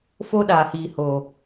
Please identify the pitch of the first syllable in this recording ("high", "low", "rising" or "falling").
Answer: high